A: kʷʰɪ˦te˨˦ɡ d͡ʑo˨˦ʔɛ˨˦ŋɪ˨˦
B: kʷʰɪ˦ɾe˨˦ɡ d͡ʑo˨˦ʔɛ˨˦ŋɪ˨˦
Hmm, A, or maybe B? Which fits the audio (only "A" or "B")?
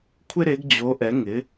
B